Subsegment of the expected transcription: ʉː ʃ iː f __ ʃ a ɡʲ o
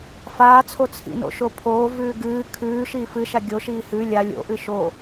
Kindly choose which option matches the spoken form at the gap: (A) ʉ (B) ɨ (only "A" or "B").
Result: B